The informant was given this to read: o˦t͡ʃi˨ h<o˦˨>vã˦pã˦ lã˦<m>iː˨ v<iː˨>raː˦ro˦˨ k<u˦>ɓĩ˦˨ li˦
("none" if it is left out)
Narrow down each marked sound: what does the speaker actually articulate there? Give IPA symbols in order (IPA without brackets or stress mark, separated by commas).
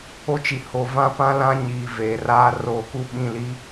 o˨, ɲ, eː˨, u˦